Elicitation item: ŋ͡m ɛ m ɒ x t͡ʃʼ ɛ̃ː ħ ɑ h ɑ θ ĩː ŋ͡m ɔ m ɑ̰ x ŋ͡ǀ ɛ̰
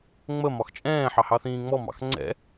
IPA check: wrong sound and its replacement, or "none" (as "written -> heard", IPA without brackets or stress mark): ɛ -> ə